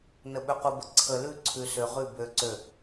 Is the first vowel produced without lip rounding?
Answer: yes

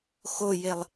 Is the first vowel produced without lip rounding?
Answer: no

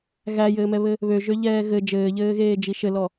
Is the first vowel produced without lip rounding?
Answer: yes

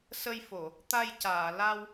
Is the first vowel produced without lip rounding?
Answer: yes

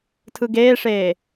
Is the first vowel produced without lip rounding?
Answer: yes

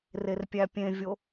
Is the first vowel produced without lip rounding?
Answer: yes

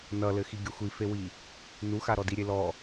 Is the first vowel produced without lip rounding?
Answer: yes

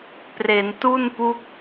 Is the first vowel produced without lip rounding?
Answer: yes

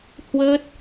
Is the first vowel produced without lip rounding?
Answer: yes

